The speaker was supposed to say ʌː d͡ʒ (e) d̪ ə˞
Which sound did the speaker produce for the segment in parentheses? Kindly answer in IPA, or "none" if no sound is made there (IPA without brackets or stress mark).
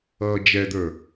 ɛ